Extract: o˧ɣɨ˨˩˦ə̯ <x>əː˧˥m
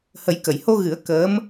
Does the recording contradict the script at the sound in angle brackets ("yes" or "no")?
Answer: yes